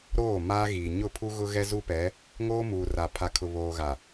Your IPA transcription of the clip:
ɾ oː˦˨ m aː˦ ɣ iː˨ ɲ ʊ˦˨ pʰ u˦ ɣ ʊ˦ ɣ ɛ˦ z u˦ p ɛ˨˦ | ŋ oː˦ m uː˨ r a˨ pʰ a˨ kʰ ʊ˨ β oː˨ ɣ a˨

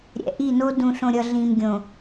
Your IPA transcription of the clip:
ɾʲ ɛ̰˨ ʔ i˦˨ n o˦ d ũ˨ ɬ õ˨ ɾʲ ʌ˨ ɮ ĩ˨ m ɡʲ õ˨

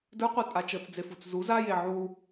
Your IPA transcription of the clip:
d ə˞ qʷ ə˞ tʼ a t͡ʃ ɤ t͡s d͡z e f u t͡s z u z a j e ʕ u

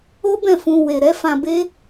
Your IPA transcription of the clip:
o˦ b ɛ̃˦˨ f ũ˧ w e˨ ɾ ɛ˨˦ f ã˧ b e˦

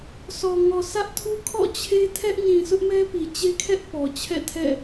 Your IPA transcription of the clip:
s ɔ˨ ŋ ɔ˨ s ä˦ ʔ tʰ u˦ kʰ ɔ̰˦˨ t͡ɕʰ e˦ tʰ ɛ˦ ʔ ɲ ĩ˨ sʰ ʊ˦ ʔ m ɛ˦ p i˨ t͡ɕ e˦ kʰ ɛ˦ ʔ p ɔ˨ t͡ɕʰ ɛ̰˦˨ tʰ ɛ̰˦˨

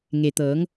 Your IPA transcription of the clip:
ŋ e˩ t̪ ɤː˩˧ ŋ

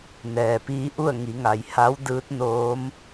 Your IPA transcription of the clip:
n ɛː˩ p iː˧˥ ʔ u˥˨ ə̯ ŋ i˩˧ ŋ a˩ j h a˧˥ w d ɯː˧˥ t̚ n oː˧˥ m

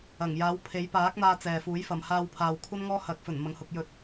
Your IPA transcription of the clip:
ɐ˨˩ ŋ j aː˨˥ w pʰ e˨˥ j p aː˨˥ k̚ n̪ aː˧ t͡s ɛː˨ f uː˨˥ j f ɐ˨ m h aː˧ w pʰ aː˨ w kʷʰ ɐ˥ n ŋ ɔː˥ h ɐ˨˥ k̚ f ɵ˨˩ n m ɐ˨ ŋ h ʊ˧ k̚ j ɵ˧ t̚

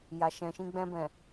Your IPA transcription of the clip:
j a˨ ʃ ɛ̃˨ ʃ ĩ˧ ɡ͡b ɛ̃˧ b ɛ̃˨

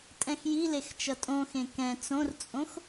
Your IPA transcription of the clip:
tʼ ɛ̃ x j i l e x t͡ʃ ʌ tʼ õ x ẽ k ɛ̃ t͡s õ r t͡sʼ õ x

